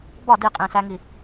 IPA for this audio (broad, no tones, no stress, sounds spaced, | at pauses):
b ɒ d i qʼ ĩ s æ ŋ i